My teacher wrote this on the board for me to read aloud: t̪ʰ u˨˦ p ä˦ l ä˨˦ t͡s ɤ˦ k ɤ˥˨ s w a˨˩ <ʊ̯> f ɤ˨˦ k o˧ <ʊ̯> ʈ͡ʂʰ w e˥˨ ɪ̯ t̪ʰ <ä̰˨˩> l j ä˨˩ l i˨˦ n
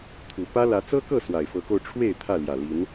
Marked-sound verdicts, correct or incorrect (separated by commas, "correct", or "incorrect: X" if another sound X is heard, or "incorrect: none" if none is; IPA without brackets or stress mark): incorrect: ɪ̯, correct, incorrect: ä˥˨